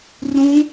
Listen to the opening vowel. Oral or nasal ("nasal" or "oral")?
nasal